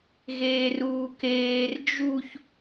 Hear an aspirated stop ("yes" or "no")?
no